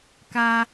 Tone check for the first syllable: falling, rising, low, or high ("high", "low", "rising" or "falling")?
low